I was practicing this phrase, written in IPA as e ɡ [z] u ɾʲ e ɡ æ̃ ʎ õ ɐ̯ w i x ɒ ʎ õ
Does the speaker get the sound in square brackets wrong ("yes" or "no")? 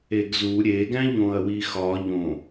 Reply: no